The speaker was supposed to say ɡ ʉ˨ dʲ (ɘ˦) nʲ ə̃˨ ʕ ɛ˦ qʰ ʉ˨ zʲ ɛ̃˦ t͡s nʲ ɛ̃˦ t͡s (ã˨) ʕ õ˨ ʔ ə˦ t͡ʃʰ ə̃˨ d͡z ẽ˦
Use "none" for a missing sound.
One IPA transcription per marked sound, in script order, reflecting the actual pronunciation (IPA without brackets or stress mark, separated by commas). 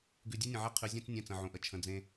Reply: ɛ˦, ə̃˨